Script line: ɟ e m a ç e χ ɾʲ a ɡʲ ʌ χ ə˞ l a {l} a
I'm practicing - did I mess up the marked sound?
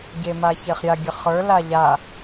yes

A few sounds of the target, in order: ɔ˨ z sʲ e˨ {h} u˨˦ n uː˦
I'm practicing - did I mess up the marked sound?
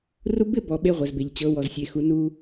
yes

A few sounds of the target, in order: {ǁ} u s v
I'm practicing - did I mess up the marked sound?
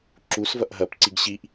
no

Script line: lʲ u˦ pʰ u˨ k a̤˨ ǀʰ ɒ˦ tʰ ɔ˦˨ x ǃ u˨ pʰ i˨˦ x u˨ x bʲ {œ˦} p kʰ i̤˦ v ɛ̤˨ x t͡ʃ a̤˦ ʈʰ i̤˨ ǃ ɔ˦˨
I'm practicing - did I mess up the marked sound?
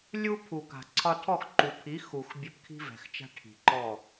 no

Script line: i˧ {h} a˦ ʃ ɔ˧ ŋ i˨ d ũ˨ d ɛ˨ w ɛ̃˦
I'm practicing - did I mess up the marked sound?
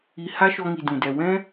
no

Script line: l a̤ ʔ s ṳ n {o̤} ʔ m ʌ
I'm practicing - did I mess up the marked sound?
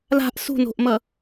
no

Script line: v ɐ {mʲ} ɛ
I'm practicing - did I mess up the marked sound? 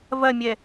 no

